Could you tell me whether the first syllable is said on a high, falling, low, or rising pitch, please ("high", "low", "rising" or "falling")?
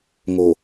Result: low